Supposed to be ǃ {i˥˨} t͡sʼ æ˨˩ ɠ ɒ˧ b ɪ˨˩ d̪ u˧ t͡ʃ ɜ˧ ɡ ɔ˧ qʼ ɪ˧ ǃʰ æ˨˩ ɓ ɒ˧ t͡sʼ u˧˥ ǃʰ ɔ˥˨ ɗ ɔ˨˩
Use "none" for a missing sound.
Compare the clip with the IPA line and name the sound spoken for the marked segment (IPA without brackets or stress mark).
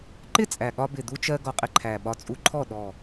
ɪ˥˨